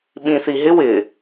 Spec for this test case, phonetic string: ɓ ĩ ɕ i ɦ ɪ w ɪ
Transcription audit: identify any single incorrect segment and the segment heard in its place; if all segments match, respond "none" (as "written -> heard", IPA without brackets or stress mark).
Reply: ɕ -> θ